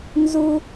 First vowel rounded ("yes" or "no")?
yes